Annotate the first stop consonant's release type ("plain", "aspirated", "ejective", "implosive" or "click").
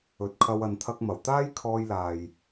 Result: plain